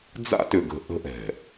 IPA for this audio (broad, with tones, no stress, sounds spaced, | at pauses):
d͡z a̰˦ t ʏ˨ ɡ ə̤˨ ʔ ə̤˦ ʔ ɛ̤˨